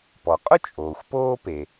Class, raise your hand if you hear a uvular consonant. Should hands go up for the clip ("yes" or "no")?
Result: yes